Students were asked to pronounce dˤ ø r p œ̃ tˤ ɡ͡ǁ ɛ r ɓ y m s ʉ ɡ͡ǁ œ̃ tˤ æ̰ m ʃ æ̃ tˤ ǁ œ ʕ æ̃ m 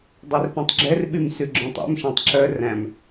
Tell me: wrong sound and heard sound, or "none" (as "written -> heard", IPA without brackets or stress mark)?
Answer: ʕ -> r